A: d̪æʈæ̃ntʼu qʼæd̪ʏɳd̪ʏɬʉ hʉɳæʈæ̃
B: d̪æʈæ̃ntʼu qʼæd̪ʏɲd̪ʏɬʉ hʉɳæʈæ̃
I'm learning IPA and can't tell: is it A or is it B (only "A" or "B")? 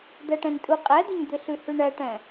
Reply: B